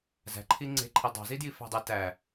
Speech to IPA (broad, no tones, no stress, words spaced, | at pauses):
zæ̤ǃʰi ŋ͡ǀe̤ǃʰi dˤɑ̤zidji fæ̤dˤi tæ